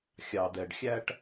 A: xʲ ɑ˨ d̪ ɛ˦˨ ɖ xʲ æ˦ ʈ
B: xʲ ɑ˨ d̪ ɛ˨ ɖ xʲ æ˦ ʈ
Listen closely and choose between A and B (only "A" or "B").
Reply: B